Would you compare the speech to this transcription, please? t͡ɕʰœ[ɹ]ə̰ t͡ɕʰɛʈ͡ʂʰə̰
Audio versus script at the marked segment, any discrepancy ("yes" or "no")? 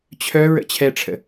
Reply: no